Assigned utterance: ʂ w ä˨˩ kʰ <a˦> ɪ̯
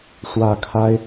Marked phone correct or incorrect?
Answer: correct